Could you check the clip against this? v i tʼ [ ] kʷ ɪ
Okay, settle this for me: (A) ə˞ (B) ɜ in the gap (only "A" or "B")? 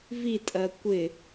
B